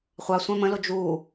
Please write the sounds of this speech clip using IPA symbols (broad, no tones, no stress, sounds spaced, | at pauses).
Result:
χʷ ɑ sʷ ɛ̃ m ə̃ l ʊ d͡ʒ u